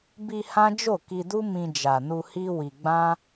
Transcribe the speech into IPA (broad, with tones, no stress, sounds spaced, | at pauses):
b i˧ h ã˦ d͡ʒ o˦˨ k i˧ d u˦ m ĩ˧ d͡ʒ a˨ n u˧ h i˦ w i˧ ɡ͡b ã˦